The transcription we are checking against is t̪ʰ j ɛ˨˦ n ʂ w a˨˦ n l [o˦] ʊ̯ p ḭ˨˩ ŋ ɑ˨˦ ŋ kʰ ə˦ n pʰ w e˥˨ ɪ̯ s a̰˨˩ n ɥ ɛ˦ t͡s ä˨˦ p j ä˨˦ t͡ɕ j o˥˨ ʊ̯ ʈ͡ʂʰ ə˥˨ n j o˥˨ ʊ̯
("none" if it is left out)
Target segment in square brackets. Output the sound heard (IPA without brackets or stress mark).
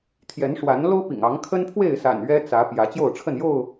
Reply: o˦